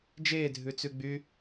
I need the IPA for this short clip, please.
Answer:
d͡ʒ eː dʱ ʉ t͡s ʉ ɡ͡b y

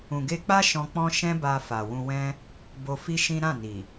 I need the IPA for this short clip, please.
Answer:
ũ˨ ɡ e˧ k͡p a˦ ʃ ɔ̃˧ k͡p ɔ̃˦ ʃ ɛ̃˦ b a˧ f a˨ w ũ˧ w ɛ̃˦ | b o˧ f i˦ ʃ ĩ˦ ɾ ã˦˨ n i˨

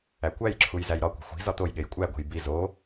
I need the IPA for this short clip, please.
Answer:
æ kʷ æ j ǁʰ u j z æ j ɾ ɒ kʷ e̤ xʷ i̤ z ɒ t̪ o j ɠ e j kʷʼ æ ɡʷ e̤ j b i z o

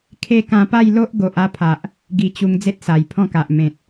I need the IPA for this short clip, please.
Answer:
kʰ e˦ k ã˧ p a˥˧ j l o˦ ʔ ɡ o˨ ʔ a˥˧ pʰ a˨ ʔ | ɡ i˧ t͡ɕ u˧ ŋ d͡z e˦ t̚ s a˨˩ j pʰ ɔ̃˥˧ k a˨ ʔ m ẽ˨ t̚

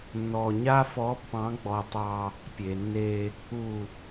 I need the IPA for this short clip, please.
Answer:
nː ɔ˨ ɲ a˦ f ɔ˨˦ pː ɑ̃˨˦ ɡ͡b ɔ˨ tˤ ɑ˦ | pʲ e˨ nː e˦ | u˨

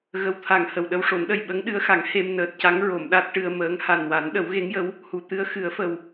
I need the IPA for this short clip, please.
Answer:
ɣ ə˨˩ w t̪ʰ a˨˩ ŋ h ə˨˩ w ɗ ə˧ w ʂ o˨˩˦ n ɗ ə˨˩ j ɓ ə˧˥ ŋ ɗ ɨ˧˥ ə̯ x a˨˩˦ ŋ h e˧ m n əː˨˩ t̚ c a˧˥ ŋ ɹ o˨˩˨ m ɗ a˦˥ t̚ ʈ ɨ˧ ə̯ m əː˧˥ ŋ h a˨˩ n w a˨˩˦ n ɗ ə˨˩˦ w ɣ e˧˥ ŋ j ə˧˥ w | h u˨˩˨ t̪ ɨ˧˥ ə̯ x ɨ˨˩˦ ə̯ f ə˨˩ w

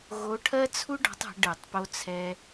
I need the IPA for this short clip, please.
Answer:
ɣ o˨˦ ʈʰ ɜ˦ t͡sʰ u˦ ɖ ɔ̤˨˦ tˤ ə̤˨˦ ɖ ɯ˧˩˧ tˤ p o˦ t͡sʰ ɛ˦

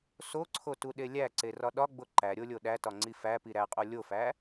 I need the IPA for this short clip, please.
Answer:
s o ǀʰ o t u ɗ e lʲ æ ǀ e r ɒ ɗ ɒ ɡ͡b o ǃ æ ɾʲ o lʲ o ɗ æ t ɒ ŋ͡ǀ i f æ p i ɾ æ qʼ o lʲ o f æ

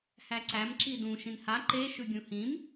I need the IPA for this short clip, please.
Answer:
h æ ǀ æ m ǁ i d ũ ʃ ĩ n h a ǃ e ʃ ʉ ɡʲ ũ h ĩ m

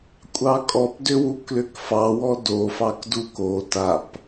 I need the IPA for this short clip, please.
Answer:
kʷʼ ɑ kʼ ɔ p d ʏ w u k l ʏ k f ɑ w ɔ d o f ɑ k d u k o t a p

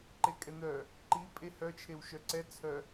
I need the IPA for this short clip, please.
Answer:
ǃ e kʼ ɛ n̪ œ | ǃ i pʼ e h œ t͡ʃʰ e w ʃ œ ǀ ɛ t͡sʰ œ

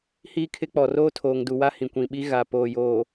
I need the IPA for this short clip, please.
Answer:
h iː˦ kʰ ɪ˦ k͡p ɔ˨ r oː˦ tʰ oː˨ ŋ d u˨ w a˦ h ĩ˨ kʷ ĩ˨ ɓ i˦ ɣ a˨ p oː˨ j oː˨

